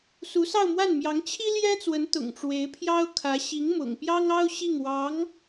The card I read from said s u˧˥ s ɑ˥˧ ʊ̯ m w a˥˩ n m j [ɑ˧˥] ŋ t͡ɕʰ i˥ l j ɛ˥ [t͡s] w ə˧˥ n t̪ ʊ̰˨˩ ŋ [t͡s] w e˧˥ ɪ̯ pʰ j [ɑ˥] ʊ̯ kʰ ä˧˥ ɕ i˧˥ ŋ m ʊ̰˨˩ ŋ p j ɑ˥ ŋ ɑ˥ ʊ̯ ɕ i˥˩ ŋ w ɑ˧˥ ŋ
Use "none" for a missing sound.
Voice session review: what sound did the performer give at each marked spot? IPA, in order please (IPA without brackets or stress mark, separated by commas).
ɑ˧˥, t͡s, ʈ͡ʂ, ɑ˥